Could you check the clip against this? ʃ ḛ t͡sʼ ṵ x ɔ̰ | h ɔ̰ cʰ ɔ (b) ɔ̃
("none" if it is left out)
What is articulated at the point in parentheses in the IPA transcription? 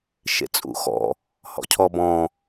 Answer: b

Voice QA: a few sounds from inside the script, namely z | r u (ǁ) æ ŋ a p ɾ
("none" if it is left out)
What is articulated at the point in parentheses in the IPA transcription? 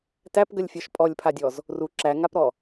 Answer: ǁ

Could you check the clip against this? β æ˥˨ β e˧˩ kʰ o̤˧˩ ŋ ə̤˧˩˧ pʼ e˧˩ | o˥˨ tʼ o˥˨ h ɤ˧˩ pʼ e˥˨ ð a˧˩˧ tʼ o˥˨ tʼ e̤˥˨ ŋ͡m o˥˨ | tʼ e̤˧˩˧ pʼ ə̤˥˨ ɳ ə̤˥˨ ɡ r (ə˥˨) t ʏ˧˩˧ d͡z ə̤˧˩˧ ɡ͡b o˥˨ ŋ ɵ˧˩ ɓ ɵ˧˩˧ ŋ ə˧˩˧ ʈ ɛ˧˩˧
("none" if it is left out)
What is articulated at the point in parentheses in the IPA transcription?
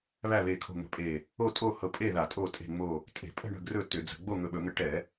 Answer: ɵ˥˨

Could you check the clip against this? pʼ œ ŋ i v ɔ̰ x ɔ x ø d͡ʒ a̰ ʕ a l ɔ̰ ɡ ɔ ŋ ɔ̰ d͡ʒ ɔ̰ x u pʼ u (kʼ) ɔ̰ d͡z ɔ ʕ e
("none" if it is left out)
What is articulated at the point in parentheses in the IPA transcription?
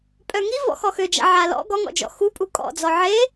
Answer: kʼ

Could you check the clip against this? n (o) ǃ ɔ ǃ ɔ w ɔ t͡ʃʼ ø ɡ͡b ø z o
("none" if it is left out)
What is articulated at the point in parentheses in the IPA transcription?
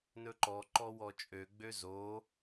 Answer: ɵ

